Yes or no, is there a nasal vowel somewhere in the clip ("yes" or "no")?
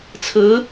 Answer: no